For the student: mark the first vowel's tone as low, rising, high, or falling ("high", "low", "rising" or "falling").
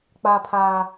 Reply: high